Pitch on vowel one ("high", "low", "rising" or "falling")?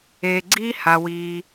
low